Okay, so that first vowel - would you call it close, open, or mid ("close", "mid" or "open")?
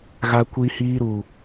open